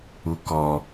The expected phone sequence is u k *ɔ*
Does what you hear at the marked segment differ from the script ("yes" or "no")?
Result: no